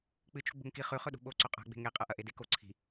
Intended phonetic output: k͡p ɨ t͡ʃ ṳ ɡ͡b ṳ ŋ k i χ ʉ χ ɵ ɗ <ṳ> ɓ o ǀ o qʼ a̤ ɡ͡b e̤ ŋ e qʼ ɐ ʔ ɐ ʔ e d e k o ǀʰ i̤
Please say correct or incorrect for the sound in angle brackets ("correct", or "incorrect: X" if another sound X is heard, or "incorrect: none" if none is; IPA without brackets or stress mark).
correct